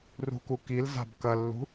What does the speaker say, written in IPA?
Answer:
rṳkukil za̤bkɐlːṳ

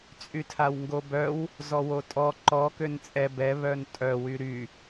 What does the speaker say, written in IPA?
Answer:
t͡sʼytʰawŋɡobœw | zɔwotʼɔ ǃɔ kønt͡sʼɛ bɛ βœntʼœ wyɾy

